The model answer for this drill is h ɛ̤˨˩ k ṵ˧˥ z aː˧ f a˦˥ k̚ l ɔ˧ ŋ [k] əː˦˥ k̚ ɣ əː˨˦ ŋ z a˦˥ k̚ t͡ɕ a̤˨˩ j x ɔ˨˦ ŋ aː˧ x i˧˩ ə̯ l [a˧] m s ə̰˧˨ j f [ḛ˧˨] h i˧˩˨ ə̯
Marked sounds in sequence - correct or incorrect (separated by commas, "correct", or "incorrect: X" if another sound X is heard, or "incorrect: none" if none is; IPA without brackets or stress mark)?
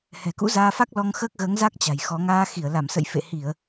incorrect: x, incorrect: a˧˩, correct